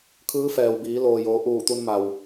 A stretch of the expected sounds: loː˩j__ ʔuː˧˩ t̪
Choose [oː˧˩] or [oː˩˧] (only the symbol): oː˩˧